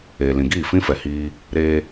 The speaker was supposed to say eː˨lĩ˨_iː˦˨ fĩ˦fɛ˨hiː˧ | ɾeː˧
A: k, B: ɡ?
B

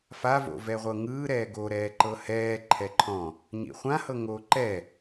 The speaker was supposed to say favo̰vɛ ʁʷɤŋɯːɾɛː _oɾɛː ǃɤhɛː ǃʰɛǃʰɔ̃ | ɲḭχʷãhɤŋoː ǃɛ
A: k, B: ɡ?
B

